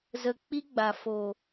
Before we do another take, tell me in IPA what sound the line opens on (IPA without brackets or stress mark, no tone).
z